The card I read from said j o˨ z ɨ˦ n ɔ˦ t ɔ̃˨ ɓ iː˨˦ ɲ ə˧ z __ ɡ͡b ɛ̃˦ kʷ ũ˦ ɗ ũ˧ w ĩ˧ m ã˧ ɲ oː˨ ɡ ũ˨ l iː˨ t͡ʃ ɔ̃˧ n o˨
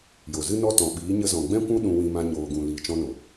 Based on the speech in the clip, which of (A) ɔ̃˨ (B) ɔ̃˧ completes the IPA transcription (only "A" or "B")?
A